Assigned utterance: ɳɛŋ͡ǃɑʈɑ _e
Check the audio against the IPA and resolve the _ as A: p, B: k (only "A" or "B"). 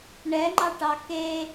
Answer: B